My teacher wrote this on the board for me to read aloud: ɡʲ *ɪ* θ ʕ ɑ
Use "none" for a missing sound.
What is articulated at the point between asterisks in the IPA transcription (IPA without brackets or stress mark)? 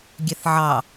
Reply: ɛ